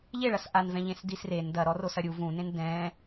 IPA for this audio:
ʎ e ɭ ɐ s ʔ a n v ɛ̃ ʎ ẽ s d i s r e n d ɐ ɾ ɔ r o s ɐ ɾʲ u v ũ n ẽ n d ɛ̃

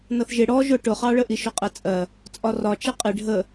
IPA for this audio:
n ʌ θ ʒ ɪ ɽ ɔ ʒ ʊ ʈ ʊ χ ɑ ɭ ə ʔ i ʃ ʊ qʼ ɛ t͡sʼ ɜ | t͡sʼ ɒ r ɒ t͡ʃ ɛ qʼ ɪ ɖʱ ə

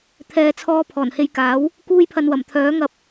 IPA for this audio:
t̪ʰ ɛː˨˧ t͡sʰ ɔː˧ pʰ ɔː˨˩ n h e˨˧ j k aː˨˥ w | k uː˧ j pʰ ɐ˨ n w ɐ˨˩ m t̪ʰ œː˨˥ ŋ ɐ˧ p̚

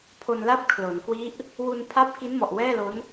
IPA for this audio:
pʰ o˧ n l a˥˩ p̚ kʰ l o˩˦ n k w i˦˥ ʔ | w u˧ n pʰ a˦˥ p̚ k i˦˥ n m ɔ˨˩ ʔ w ɛː˥˩ l o˦˥ n

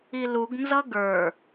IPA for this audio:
i l u ɡ n z ʌ ɡ ə˞

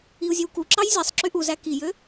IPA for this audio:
i u̯ zʲ ø w k u ǁ ɑ j zʲ æ sˤ ǁ y ʔ u z æ k i j ø

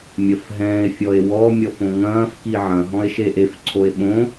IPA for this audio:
mʲ ɐ f ɦ ɛ̃ː e̯ fʲ ɔ e̯ w ɔ mʲ ɔ f õ ŋ ɐ̃ː f k i ʕ ɐ̃ ɦ ɔ̃ e̯ ʃ e ʔ e f ǀʰ o e̯ ɓ õ

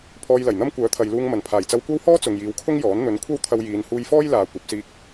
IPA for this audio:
pʰ ɔː˧ j l ɐ˨˩ j n̪ ɐ˥ m kʷ œː˨˥ t̪ʰ ɐ˨ j l uː˧ ŋ m ɐ˨˩ n pʰ aː˨˩ j t͡s ɐ˧ w kʷ ɐ˥ w h ɔː˥ t͡s ʊ˨ ŋ j iː˨˧ w kʰ ʊ˥ ŋ j ɔː˨˥ n n̪ ɵ˨˥ n kʷʰ ɐ˥ w t̪ʰ ɐ˧ w j iː˨˧ n h uː˧ j f ɔː˥ j l aː˨˧ kʷ ɐ˨˥ p̚ s iː˧ k̚

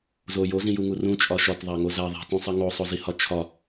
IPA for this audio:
z o j o z ĩ j u ŋ u r ũ t͡ʃʼ ɒ ʃ ɒ t ðˤ æ ŋ o z æ ðˤ e̤ t ũ sˤ i ŋ o sˤ o z i h ɒ t͡ʃʰ ɒ

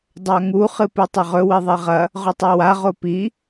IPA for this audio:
dˤ a ŋ u χ ɨ p u tˤ ɐ ʁ ɵ w i ðˤ e ʁ ɐ | ʁ ɵ tˤ a w a ʁ o p i

